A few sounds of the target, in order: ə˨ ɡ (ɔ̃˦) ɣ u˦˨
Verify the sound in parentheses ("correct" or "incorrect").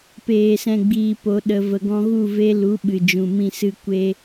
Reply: incorrect